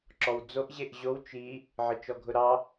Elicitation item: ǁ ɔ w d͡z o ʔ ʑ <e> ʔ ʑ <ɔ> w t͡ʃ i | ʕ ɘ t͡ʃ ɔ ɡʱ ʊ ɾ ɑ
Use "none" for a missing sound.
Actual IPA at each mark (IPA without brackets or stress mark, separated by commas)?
e, o